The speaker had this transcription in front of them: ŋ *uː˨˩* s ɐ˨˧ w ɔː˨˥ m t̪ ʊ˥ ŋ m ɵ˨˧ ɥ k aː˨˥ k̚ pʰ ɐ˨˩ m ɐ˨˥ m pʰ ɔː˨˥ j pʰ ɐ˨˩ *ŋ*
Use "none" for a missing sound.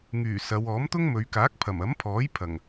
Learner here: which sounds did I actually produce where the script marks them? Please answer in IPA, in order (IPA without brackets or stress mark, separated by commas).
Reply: yː˨˩, ŋ